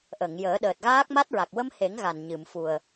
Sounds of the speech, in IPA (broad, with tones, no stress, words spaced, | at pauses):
ʔə˨˩˨ŋjəː˨˩˦ ɗəː˨˩t̚ɣaː˦˥k̚ma˦˥t̚ɹa˨˩k̚ wə˧m he˨˩˦ŋ ɣa˨˩nɲɨ˨˩˨mfu˨˩ə̯